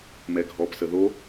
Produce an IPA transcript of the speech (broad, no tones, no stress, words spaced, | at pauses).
mɛɡʱɔpsə ðo